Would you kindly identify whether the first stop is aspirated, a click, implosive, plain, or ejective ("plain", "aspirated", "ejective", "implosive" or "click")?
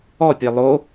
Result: plain